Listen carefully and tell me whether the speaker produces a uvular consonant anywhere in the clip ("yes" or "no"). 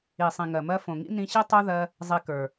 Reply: no